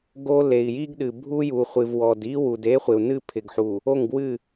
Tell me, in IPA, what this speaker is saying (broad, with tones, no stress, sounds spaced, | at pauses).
ɡ o˦ l e˨ i̯ j i˦ ɡ ɗ ɨ˨ bʱ u˦ j u˨ χʷ ɨ˨ v w ɔ˨ d i˦ w u˨ d e˦ χʷ ɪ˨ u̯ n ɨ˦˨ pʰ ɪ˨ ɡ ħ u˨ | o˦˨ ŋ b w ɨ˦˨